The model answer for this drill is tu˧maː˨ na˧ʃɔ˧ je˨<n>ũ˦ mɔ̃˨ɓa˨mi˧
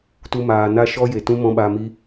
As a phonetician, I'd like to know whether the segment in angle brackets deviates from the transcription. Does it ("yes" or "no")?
yes